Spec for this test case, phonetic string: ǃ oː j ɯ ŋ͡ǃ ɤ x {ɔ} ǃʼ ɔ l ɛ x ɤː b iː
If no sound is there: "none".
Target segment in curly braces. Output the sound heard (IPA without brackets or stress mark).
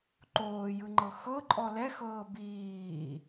ɤ